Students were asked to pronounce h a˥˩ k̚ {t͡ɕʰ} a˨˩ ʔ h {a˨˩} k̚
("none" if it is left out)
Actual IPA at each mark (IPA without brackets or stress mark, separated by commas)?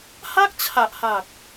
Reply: t͡ɕʰ, a˨˩